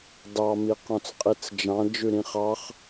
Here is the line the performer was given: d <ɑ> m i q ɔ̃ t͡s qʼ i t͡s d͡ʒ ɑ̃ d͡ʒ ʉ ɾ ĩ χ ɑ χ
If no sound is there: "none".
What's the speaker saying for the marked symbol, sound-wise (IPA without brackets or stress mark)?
ɑ